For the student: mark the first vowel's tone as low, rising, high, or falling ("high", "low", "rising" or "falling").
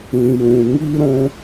low